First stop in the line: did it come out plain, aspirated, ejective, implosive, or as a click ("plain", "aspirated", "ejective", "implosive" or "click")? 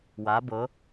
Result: plain